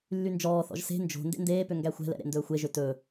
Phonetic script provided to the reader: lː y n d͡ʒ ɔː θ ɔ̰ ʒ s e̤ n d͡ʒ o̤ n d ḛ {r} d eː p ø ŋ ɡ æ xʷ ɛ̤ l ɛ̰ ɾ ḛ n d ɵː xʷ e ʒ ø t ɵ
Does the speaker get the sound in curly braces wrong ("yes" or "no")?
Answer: yes